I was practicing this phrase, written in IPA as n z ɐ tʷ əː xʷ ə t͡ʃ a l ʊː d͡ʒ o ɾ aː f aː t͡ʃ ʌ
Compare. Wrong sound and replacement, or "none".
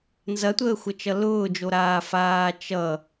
a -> ʌ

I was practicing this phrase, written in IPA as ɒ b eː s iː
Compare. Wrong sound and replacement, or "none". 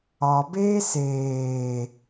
iː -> eː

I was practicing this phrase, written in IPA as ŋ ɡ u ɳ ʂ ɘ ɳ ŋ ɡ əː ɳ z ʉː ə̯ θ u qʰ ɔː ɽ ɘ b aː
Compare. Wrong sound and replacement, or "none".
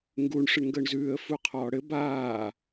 θ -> f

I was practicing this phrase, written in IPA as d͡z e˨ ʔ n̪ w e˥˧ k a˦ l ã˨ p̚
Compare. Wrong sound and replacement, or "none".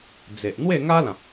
k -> ŋ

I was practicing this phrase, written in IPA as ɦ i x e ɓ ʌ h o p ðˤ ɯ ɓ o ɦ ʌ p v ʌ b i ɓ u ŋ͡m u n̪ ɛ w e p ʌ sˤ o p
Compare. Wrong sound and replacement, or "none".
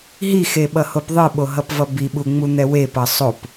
none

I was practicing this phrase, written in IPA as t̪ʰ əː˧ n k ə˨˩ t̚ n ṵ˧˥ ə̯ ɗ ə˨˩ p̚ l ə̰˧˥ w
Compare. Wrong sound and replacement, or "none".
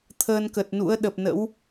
l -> n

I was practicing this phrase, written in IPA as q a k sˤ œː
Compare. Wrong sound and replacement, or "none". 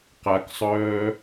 none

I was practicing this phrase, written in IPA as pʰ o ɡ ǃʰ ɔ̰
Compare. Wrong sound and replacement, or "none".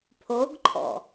none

